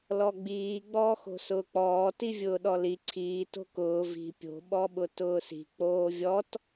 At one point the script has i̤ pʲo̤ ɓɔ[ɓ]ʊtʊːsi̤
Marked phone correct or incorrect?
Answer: correct